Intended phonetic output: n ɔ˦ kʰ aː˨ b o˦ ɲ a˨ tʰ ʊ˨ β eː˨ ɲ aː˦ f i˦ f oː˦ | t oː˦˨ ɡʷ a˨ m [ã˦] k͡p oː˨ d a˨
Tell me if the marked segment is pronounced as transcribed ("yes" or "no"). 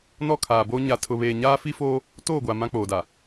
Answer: yes